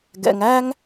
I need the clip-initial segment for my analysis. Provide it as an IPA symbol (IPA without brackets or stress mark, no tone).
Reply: ɡ